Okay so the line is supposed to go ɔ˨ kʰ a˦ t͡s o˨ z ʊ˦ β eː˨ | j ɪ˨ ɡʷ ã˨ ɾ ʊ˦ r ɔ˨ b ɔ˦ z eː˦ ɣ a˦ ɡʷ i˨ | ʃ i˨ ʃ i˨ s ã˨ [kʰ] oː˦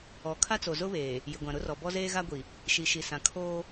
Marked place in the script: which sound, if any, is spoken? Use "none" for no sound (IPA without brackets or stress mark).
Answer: kʰ